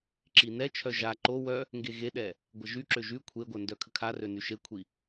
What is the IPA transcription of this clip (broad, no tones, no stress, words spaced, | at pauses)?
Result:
ǁinɛt͡ʃʰœ ʒa ǃo wœ | ŋɡeɣeɗɛ | ɡʷəʒyǁø ʒy kʷʰeɡʷœ ndœkʰəkʰarø nyʃekʷʰi